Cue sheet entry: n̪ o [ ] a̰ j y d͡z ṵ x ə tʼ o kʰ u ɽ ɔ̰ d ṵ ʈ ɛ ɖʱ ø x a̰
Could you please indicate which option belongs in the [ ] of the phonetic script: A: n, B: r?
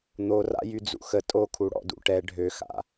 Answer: B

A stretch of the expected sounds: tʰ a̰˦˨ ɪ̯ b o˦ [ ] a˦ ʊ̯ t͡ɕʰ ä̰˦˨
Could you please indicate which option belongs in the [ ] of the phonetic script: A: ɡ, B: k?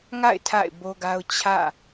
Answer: A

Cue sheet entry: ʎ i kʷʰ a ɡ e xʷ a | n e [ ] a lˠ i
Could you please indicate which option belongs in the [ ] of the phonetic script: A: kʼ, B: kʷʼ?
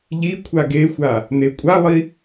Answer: B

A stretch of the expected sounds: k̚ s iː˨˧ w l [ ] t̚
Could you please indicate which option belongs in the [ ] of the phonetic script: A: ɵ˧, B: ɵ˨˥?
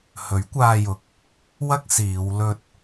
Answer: A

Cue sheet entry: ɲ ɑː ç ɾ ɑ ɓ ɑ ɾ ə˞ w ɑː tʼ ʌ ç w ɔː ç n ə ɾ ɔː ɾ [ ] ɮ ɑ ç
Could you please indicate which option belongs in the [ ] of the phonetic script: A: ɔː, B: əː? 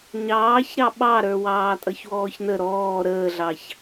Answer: B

